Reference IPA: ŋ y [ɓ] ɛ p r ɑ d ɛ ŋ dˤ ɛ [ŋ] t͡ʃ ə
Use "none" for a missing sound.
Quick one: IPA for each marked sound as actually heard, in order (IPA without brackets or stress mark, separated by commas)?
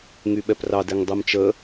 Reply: ɓ, m